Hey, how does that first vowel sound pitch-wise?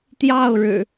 falling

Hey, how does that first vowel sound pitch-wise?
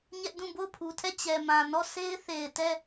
high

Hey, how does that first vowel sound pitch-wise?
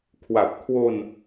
low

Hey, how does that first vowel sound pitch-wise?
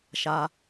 low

